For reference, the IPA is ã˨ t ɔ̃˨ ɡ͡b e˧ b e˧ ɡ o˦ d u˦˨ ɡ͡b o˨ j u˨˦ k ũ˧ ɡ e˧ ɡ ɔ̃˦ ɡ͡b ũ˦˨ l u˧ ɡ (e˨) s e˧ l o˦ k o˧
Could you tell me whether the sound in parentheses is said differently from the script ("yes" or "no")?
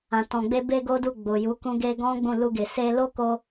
no